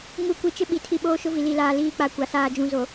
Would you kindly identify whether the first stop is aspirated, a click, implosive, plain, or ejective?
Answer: plain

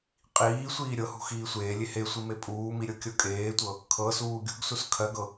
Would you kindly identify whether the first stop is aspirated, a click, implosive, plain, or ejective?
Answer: ejective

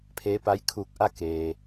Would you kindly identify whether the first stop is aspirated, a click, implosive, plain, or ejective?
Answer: aspirated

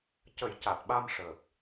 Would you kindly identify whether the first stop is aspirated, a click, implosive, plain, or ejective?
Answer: plain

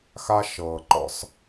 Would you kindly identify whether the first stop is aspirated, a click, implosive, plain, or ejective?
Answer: click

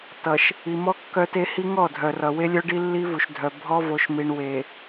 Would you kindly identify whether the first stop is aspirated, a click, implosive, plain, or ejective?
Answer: plain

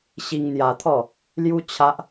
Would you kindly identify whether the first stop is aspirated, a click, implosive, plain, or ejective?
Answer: aspirated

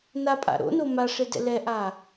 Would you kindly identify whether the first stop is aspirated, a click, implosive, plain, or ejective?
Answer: ejective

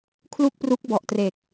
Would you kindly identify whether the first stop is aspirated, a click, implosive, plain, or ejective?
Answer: aspirated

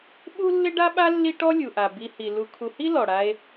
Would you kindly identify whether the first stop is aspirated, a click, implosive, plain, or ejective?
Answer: implosive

